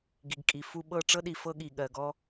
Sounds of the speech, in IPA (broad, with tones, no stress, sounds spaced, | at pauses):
ɡ i˨ ɡ kʼ i˨ f u˧ ɓ ɤ˦˨ ʈ͡ʂ ɤ˦ ɗ i˨ f ɤ˦ ɠ i˨ ɠ ɜ˨ ɡ ɔ˧